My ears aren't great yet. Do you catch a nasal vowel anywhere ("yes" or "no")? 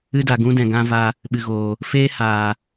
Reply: yes